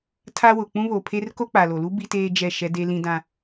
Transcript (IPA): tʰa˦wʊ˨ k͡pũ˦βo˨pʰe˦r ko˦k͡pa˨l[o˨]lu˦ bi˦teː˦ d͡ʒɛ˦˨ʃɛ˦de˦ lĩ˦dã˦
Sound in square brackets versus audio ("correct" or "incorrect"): correct